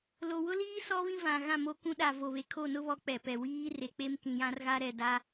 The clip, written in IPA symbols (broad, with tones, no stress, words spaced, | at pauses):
lo˨wʊ˦liː˦ sɔ˦βĩ˦vã˨ ɣã˦˨mo˦kũ˦ ɗa˨ vo˨βe˨ kʰo˦˨nʊ˦βɔ˨˦ k͡pɛ˨pɛ˨ wiː˦re˨k͡pe˦m kĩ˨jã˦rɣa˦ɾɛ˦˨ da˦